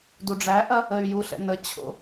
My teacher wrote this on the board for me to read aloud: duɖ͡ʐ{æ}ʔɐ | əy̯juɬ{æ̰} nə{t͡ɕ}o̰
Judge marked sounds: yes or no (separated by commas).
yes, no, no